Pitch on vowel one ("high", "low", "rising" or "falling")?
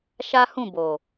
high